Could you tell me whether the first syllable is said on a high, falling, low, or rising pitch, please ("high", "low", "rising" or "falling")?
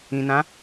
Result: low